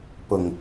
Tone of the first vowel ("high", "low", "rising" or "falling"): low